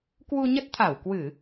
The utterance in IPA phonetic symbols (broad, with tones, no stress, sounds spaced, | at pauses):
k w u˧ ɲ ə˦˥ t̚ t̪ʰ a˧˩ w k w ɨ˧˩˨